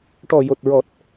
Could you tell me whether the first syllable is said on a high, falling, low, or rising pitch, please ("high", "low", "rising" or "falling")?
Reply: low